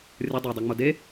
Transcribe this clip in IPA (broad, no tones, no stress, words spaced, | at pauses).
rʲə dˤodˤʌŋ͡mo de